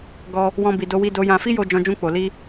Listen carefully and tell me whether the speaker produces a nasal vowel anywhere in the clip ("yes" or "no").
yes